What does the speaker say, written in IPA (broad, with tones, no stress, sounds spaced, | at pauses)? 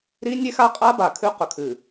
ɾ i˦ nʲ e˦ x a˦ qʼ a˦ b a˨ kʰ ʉ˦ q ɵ˨ kʰ ɨ˨